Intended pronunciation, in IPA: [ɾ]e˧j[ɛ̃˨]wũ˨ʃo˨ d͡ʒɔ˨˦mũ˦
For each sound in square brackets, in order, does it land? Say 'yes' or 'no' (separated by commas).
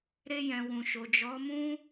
yes, yes